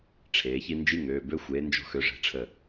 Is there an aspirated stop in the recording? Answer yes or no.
yes